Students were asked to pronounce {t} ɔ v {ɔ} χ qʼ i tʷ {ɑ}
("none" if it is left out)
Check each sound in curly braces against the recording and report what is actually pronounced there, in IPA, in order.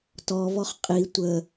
t, ɔ, ə

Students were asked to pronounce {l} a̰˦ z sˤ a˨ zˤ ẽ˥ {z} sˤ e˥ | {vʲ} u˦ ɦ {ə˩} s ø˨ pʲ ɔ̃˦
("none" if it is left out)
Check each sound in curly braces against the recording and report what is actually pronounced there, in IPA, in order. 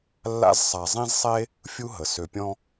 lː, z, fʲ, ə˩

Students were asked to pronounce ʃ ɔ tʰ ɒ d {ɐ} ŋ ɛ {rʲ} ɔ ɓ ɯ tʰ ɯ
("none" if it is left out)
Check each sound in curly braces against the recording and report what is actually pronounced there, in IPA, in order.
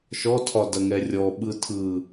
ɐ, rʲ

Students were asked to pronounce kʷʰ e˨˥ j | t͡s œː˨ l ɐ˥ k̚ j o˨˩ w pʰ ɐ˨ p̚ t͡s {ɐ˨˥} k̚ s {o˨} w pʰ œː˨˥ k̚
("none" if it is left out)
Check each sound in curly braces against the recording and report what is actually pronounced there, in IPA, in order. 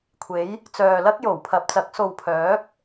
ɐ˨˥, o˨

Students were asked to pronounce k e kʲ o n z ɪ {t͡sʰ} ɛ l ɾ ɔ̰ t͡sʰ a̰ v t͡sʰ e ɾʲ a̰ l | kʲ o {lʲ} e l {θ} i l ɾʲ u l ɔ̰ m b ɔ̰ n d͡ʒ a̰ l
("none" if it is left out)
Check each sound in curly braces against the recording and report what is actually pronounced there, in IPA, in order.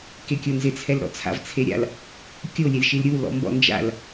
t͡sʰ, lʲ, ʃ

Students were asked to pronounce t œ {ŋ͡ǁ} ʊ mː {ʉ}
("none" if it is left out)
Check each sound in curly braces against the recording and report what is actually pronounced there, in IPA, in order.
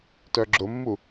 ɡ͡ǁ, u

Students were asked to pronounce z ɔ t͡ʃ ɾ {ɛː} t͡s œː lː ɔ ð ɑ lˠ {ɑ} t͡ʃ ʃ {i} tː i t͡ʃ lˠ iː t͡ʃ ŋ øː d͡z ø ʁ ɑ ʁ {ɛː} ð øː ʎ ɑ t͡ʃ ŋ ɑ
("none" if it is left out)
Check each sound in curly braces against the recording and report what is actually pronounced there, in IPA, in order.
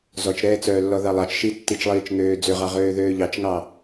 ɛː, ɑ, i, øː

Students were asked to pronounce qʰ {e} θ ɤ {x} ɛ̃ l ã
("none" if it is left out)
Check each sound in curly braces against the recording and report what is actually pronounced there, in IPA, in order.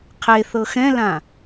e, x

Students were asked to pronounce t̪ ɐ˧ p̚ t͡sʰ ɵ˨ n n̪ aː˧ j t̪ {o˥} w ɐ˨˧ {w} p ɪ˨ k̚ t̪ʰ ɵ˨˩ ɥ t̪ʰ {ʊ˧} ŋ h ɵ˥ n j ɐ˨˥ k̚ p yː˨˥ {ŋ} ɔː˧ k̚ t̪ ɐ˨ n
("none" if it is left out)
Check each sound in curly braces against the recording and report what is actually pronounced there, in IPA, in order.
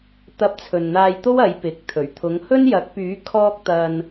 o˥, j, ʊ˨˧, kʰ

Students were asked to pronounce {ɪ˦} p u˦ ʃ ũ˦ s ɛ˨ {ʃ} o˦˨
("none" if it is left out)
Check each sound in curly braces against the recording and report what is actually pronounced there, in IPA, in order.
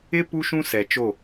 ɪ˦, t͡ʃ

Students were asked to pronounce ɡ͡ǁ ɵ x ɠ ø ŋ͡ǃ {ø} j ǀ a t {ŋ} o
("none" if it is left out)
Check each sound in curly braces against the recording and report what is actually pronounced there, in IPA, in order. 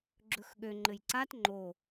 ɘ, ŋ͡ǃ

